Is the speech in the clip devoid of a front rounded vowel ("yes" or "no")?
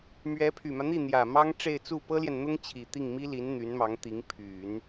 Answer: no